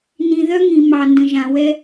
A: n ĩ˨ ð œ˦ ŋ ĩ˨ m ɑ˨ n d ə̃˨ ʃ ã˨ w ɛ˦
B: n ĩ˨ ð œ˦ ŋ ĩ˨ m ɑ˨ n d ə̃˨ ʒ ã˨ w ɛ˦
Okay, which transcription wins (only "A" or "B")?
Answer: B